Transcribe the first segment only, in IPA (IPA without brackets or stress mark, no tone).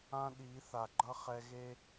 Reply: ã